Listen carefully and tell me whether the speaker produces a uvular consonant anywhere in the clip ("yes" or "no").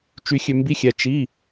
no